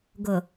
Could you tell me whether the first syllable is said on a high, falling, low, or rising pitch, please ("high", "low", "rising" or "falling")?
low